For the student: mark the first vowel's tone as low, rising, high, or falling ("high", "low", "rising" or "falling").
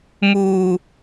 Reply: high